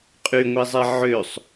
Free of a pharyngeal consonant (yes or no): no